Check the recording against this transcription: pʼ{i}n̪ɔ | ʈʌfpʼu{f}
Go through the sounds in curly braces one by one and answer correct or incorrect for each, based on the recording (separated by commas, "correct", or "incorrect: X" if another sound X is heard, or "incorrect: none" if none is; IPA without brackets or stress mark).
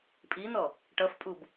correct, incorrect: b